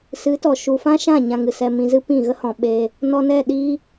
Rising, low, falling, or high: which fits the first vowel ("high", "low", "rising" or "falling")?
rising